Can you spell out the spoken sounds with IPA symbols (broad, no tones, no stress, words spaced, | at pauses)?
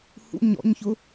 hṵ ɲɔ̰ɲçʊ